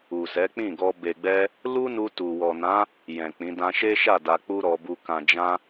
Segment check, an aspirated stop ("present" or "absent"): absent